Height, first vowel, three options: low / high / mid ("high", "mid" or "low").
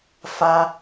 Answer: low